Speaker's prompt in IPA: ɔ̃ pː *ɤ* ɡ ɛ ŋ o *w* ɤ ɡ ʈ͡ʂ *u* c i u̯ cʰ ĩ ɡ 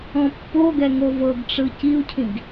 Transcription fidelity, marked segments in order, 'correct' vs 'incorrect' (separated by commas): incorrect, incorrect, incorrect